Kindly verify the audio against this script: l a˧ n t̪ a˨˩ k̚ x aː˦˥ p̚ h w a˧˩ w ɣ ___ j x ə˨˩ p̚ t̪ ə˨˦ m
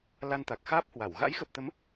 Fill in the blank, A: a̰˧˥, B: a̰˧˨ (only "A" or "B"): A